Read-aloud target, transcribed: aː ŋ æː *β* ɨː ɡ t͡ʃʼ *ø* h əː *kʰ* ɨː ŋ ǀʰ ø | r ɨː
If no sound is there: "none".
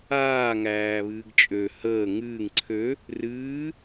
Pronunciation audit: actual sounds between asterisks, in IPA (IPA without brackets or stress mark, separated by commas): β, ø, ŋ